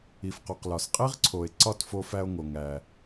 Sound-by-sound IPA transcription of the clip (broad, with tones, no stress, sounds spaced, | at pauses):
i˩ f q o˩ q l ɒ˩ s qʼ i˥ ʁ ǀʰ o˩ e̯ ǀ ɒ˥˩ t f o˧ f æ˧ o̯ ŋ o˩ ŋ æ˩